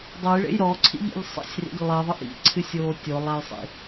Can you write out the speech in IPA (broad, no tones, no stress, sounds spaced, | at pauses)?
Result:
dˤ o j ɭ ḛ j ɾ ɔ ǀʰ ḭ ʎ ḭ ʎ sˤ ḛ sʲ r ḭ ʎ lˠ i ðˤ ɨ ʔ ḭ ǀʰ ɨ sʲ oː tʲ o lˠ a j sˤ ḭ